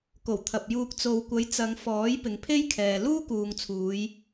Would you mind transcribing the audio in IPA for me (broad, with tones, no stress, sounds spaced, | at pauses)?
k o˨˩ w t̪ʰ ɐ˨ p̚ j uː˧ k̚ t͡s o˨ w kʷ ɐ˨˥ j t͡s ɐ˨˧ ŋ f ɔː˨˥ j p ɪ˨ ŋ pʰ e˥ j kʰ ɛː˨ l uː˥ k uː˨ ŋ t͡sʰ uː˨˧ j